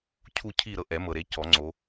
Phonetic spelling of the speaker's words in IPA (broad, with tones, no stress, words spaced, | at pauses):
cʰu˦˨ cʰi˦˨ ɾɤ˦˨ʔɛ˨˩˦mɤ˨ɾe˨˦ cɔ˨˩˦ŋ͡ǀo˨˦